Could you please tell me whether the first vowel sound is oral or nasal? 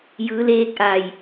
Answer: oral